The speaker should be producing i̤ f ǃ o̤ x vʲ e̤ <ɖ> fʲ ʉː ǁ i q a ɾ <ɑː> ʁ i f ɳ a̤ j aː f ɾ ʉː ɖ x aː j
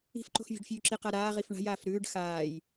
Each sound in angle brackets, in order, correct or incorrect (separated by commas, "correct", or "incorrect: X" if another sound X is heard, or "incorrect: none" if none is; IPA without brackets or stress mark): correct, incorrect: aː